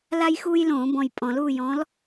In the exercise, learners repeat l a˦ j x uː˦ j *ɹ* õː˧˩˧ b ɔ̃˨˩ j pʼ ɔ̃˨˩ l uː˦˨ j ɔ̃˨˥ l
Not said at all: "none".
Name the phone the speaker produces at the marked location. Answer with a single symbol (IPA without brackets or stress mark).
l